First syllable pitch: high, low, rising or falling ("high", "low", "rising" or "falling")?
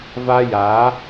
high